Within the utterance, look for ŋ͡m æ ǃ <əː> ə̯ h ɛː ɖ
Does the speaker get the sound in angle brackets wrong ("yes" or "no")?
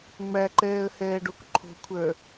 yes